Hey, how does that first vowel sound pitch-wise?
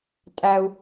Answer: high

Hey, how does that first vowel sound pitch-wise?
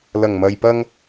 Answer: low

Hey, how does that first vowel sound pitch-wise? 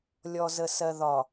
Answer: low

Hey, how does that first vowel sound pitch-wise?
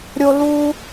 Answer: high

